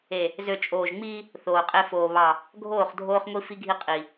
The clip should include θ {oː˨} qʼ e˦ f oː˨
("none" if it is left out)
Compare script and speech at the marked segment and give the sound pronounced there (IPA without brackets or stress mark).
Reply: oː˨